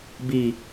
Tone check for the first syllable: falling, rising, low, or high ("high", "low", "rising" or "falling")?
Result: low